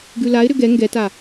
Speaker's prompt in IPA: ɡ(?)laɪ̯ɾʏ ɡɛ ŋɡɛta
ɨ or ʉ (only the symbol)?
ʉ